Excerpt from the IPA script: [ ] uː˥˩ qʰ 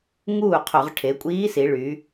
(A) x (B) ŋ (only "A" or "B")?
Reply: B